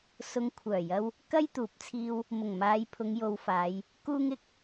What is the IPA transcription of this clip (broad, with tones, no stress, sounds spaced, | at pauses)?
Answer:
s ʊ˧ ŋ kʷʰ œː˨˩ j ɐ˧ w | k ɐ˥ j t̪ uː˨˥ p̚ t͡sʰ iː˧ w | m ʊ˨˩ ŋ m aː˨˧ j pʰ ʊ˨˧ ŋ j o˧ w f aː˨˧ j | k uː˥ ŋ ɪ˥ k̚